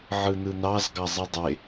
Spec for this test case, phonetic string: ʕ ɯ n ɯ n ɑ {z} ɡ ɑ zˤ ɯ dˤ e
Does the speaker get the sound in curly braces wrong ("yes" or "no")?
no